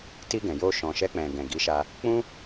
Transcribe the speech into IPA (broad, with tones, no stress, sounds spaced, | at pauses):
t i˧ ɡ ɛ̃˨ j o˧ ʃ ɔ̃˨ ʃ ɛ˧ k͡p ɛ̃˨ ɡ ɛ̃˨ ɡ i˨˦ ʃ a˧ | k͡p ũ˦